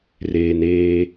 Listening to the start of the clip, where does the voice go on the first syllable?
low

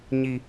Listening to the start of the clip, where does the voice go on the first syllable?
low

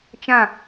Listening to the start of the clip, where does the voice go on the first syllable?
falling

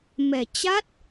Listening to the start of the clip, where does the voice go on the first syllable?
low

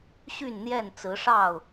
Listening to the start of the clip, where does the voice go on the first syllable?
falling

